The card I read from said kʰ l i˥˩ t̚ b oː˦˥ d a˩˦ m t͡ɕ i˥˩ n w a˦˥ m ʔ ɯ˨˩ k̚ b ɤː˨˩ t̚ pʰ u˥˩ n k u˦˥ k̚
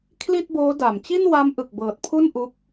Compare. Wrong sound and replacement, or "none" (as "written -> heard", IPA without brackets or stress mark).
k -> ʔ